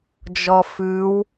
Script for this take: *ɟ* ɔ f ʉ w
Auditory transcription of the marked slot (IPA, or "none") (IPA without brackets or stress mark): d͡ʒ